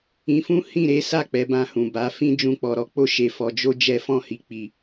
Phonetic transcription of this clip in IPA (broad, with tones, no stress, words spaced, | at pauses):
ĩ˧fũ˦ hĩ˦˨ɾe˨˦sa˦˨ k͡pɛ˨˦bã˧hũ˨ ba˨˦ fĩ˦ d͡ʒũ˧k͡pɔ˨ɾɔ˨˦ k͡po˧ʃe˨fɔ˨d͡ʒo˧ d͡ʒɛ˧fɔ̃˧hi˨ k͡pi˨